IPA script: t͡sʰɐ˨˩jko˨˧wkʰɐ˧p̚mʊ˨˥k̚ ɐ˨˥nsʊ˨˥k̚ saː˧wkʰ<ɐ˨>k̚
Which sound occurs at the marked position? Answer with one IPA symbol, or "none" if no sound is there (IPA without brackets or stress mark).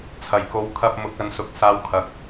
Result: ɐ˨